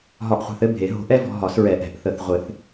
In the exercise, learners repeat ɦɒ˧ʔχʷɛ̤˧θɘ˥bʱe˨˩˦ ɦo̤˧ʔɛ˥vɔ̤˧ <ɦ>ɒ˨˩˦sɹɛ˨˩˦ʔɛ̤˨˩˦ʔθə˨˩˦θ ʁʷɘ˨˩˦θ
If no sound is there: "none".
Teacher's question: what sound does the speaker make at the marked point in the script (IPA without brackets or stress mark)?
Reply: ɦ